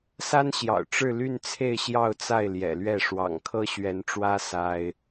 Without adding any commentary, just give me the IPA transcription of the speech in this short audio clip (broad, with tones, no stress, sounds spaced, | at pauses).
s a˥ n ɕ j ɑ̰˨˩ ʊ̯ ʈ͡ʂ ɻ̩˥˧ l y˥˧ n t͡sʰ e˥˧ ɪ̯ ɕ j ɑ˥˧ ʊ̯ t͡s a˥˩ ɪ̯ l j ɛ̰˨˩ l ɥ ɛ˥˩ ʂ w ɑ̰˨˩ ŋ kʰ ɤ˥ ɕ ɥ ɛ˧˥ n ʈ͡ʂ w ä˥ s a˥ ɪ̯